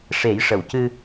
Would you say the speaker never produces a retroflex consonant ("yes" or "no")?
no